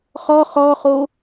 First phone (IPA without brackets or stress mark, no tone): χ